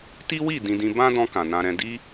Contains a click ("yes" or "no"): no